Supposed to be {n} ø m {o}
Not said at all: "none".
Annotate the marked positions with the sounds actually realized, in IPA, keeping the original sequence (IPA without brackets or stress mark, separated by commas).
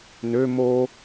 n, o